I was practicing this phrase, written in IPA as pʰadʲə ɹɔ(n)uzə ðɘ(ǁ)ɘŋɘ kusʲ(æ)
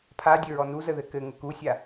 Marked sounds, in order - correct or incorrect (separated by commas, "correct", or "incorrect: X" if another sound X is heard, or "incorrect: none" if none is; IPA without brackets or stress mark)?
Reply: correct, incorrect: k, incorrect: a